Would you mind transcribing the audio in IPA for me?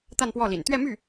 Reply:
t̪ a˥˧ n p w ɔ˥˩ l ḭ˨˩ n t̪ ɥ ɛ˥˧ m y˥˩

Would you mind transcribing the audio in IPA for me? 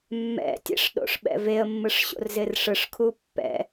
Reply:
mː ɛ̰ tʲ ɛ̰ ʂ ɗ o̰ ʂ ɓ ɛ̰ v e ə̯ mː ɯ ʂ ɕ o̰ r z ɪ r ʂ ɯ ʂ kʰ u pː ɛ̰

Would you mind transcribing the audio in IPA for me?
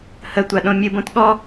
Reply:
h ə tʷ a ɗ õ mʲ ɨ b õ t ɠ ɔ

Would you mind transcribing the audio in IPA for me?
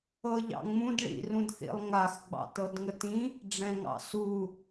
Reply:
ɤ ʎ ɑ̰ ŋ͡m ũ d ɭ ḭ r ũ d θ ḭ lˠ ŋ a x ɡ͡b ɑ̰ t ɤ d ŋ ə t ĩ | ɖ͡ʐ ɛ̃ ŋ ɑ̰ s u

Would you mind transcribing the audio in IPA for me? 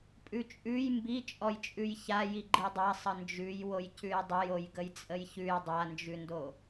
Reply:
pʼ ʉ t͡ʃʼ ʉ j m b i t͡ʃʼ ɔ j t͡ʃʼ ʉ j ç a j i ɡ͡ǃ i dˤ a sˤ ə n d͡ʒ ʉ j w o j c ʉ j dˤ ə j o j ɡ ə j t͡sʼ ə j ç ʉ j dˤ a n d͡ʒ ʉ n d o

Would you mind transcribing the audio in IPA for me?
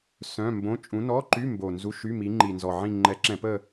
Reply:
s œ̃˧˥˧ m b õ˧˥˧ t͡ʃʼ ũ˨˦ n ɔ˧˥˧ ǃ y˧˥˧ m b o˨˩ n z u˧˥˧ ʃ y˧˥˧ m i˨˦ ŋ͡ǃ i˨˩ n z ɔ˨˩ ʕ ĩ˦˨ ŋ͡ǃ ɛ˨˦ ǁ ɛ̃˧˩˧ p ə˦˨

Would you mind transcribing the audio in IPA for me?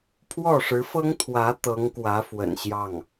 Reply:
pʰ w ɔ˥˩ ʂ ɻ̩˧˥ f ɤ˥ ŋ t̪ʰ w ä˧˥ t̪ ɤ˧˥ ŋ k w ä˧˥ f w ə̰˨˩ n ɕ j ɑ˥˩ ŋ

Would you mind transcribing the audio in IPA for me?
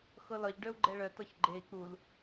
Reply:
x ɤ l ɒ ʎ ɖ œ u̯ ɡ͡ǃ ɛ ɭ œ t ɒ ç ɡ͡ǃ e i̯ k͡p u l

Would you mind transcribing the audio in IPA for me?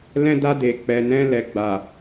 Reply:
l ɛ̃˧ d a˧ d e˨ k͡p ɛ˨ n ɛ̃˧ l ɛ˨ ɡ͡b a˨

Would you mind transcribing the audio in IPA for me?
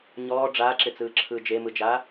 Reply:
ɲ ɔː ɖ͡ʐ aː ǁ ɪ t͡s ɯː ǁʰ ɯː d͡ʒ e m ɯ d͡ʒ aː

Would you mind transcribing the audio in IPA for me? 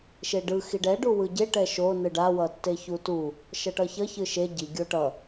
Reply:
ʃ e ɖ ɯ x i ɖ ɛ ɖ u w ɯ ɟ e ʈ ɛ ʃ o n ɯ ɖ a w ʌ tː e ç u t u | ʃ ʌ ʈ ʌ ç ʌ ç ɯ ʃ e ɟ i ɡʲ o ʈ ʌ

